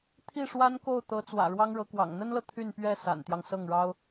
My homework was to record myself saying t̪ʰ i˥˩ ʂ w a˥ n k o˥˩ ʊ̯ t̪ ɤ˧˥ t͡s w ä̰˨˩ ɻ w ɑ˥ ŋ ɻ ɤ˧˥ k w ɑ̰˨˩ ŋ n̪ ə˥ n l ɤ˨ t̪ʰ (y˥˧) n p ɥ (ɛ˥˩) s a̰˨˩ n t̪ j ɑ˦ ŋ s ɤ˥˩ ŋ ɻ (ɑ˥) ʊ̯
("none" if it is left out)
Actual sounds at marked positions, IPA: y˥˧, ɛ˥˩, ɑ˥

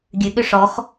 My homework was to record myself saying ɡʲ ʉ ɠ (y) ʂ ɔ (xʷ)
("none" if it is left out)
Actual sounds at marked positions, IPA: ʏ, x

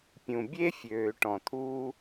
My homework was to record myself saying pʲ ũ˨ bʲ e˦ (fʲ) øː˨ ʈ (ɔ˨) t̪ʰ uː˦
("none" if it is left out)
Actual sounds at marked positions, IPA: fʲ, ɔ̃˨

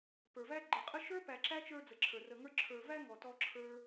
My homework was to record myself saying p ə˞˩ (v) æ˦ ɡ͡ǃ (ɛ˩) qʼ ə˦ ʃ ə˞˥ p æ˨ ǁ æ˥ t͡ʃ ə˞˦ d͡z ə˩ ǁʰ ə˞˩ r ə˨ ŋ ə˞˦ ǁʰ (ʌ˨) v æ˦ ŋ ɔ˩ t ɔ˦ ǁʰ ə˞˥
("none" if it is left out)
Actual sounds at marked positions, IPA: v, ə˩, ə˞˨

